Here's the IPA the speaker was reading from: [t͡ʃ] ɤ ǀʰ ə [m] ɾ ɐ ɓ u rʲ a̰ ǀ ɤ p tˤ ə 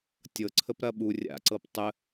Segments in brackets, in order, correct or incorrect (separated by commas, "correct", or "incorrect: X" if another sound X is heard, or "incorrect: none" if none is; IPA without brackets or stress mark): incorrect: tʲ, incorrect: p